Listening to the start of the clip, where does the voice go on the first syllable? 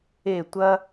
falling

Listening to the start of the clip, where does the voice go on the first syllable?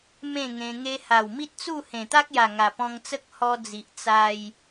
falling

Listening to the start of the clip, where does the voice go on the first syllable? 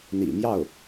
low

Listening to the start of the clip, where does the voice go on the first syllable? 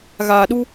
low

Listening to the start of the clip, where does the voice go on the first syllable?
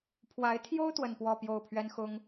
rising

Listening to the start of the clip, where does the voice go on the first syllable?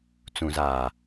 low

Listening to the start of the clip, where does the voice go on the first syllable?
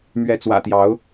rising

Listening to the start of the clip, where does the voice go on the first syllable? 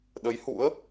rising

